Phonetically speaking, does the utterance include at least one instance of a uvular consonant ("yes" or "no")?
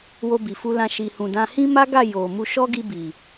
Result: no